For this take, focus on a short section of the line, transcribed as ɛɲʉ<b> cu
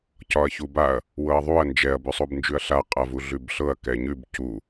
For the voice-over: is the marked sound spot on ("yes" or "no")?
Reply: yes